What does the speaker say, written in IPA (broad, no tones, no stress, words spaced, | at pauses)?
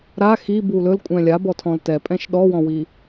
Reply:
ɾa xi bulɵl kʷʼɛ̃lʲa bɔtʰɔ̃ltɛ pʼɛ̃ʃɗɔwɔ̃wi